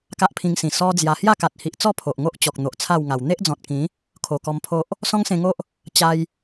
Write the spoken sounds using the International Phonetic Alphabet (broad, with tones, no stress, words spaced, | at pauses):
ka˦ʔpʰĩ˧ŋsĩ˨˩ sɔ˦d͡zja˧ hja˥˧ka˨t̚hi˨ʔt͡sɔ˥˧ pʰo˨ʔŋo˦ʔ t͡ɕɔ˨k̚n̪o˨ʔt͡sʰa˥˧wŋa˨˩w n̪e˦ʔd͡zɔ̃˨t̚kĩ˨˦ | kʰo˨˩kɔ˧mpʰo˦ʔ | sɔ̃˦ŋsẽ˧ŋo˦ʔ | t͡ɕa˧j